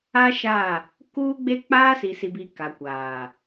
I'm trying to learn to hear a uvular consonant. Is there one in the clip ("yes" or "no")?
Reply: no